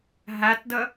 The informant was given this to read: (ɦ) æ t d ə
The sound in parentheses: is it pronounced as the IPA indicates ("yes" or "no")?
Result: yes